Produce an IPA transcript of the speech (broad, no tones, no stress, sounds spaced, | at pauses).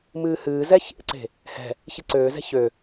m ɨː h ɨː z ɛ ç ḛ ǀ e̤ | h ɛ̤ | ç ɨ ǀ øː z ɛ̤ ç ø